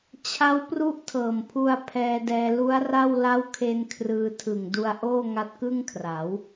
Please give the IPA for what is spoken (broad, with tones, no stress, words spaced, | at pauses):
t͡ɕʰa˦˥w pru˦˥ʔtʰɤː˨˩mpʰu˧a̯ pʰɛː˧dɛː˧lu˦˥a̯ra˥˩w la˦˥wkʰe˧n kʰrɯː˧tʰɯ˨˩ŋdu˧a̯ ʔoː˥˩ŋa˦˥t̚kɯ˥˩ŋkʰra˩˦w